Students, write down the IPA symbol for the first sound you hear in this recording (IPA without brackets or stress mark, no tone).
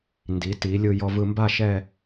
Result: n